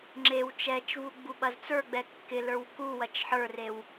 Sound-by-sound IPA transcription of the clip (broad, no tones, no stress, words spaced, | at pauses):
ŋ͡ǁew t͡ʃɛt͡ʃvu ɡ͡buɓɐzt͡sə˞ɡ͡bɛ kːɪlə˞w kuwɐt͡ʃ ħə˞rew